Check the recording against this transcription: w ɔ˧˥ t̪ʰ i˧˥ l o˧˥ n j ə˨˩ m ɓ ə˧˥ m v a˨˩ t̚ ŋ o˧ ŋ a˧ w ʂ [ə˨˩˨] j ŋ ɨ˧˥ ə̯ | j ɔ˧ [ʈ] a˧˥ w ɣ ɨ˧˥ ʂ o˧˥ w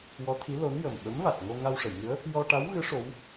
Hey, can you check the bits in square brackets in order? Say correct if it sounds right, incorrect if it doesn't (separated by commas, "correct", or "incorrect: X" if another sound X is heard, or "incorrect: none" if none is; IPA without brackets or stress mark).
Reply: correct, correct